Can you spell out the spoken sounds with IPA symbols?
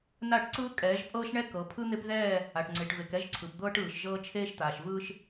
n a˦˨ ʈ ǀ ɯː˦ kʼ ɛː˨˦ ʒ pʼ ɤː˦ ʃ ɳ ɛ˦ k ɤ˨˦ pʰ ɯ˦ n̪ e˦ p ð ɛː˦˨ | a˨ ʈ ŋ͡ǀ e˨ ʈ v e˨ k ɛ˦ ʒ ǀʰ ɯ˨ p d̪ ɤː˦ ʈ ɯː˨ ʃ ʒ ɤː˦ t͡ʃʰ eː˦ ʃ t̪ aː˨ ʃ v ɯː˦ ʃ

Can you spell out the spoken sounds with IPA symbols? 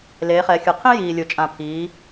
l eː˩˧ χ ɛ˩˧ xʲ ɯ˩ qʰ ĩ˥ j iː˩ lʲ o˩ t͡ʃʼ ã˩ pʰ iː˩˧

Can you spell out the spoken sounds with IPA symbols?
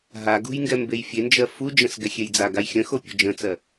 ɦ a ɡ ṳ j ŋ ɡ ɛ m b e j fʲ e n d͡ʒ ɜ f u d͡ʒ ə̃ s ɡ ɛ xʲ e j d͡z a ɡ a j xʲ ə̃ x o pʲ o̤ d͡ʒ ə̃ t͡s ɜ

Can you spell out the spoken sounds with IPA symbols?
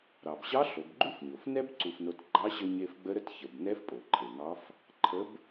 ɾ ɑ˩ b ɕ ɑ˧˥ ɬ o˩˧ b ɡ͡ǃ u˥ f ɲ o˩ f n ɛ˥ b ǀ u˧ f n o˧˥ t ɡ͡ǃ ɑ˧˥ ɕ ə˧ ɲ e˧ f ɡ͡b ə˧˥ ɾ ə˧ t ç ə˩ b n ɛ˧˥ f pʼ o˩ ǃʰ e˩ ŋ ɑ˧˥ f | ǃʰ ə˧˥ b

